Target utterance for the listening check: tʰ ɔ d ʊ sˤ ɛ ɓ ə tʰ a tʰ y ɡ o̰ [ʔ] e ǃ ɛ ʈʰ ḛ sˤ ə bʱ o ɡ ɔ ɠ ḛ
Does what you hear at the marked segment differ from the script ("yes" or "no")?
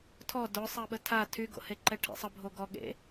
yes